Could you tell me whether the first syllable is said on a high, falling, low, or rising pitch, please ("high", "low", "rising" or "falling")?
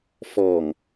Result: low